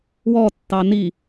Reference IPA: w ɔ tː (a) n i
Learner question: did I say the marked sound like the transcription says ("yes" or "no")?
no